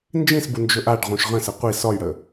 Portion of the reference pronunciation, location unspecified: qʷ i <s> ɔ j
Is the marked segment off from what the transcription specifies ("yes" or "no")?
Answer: no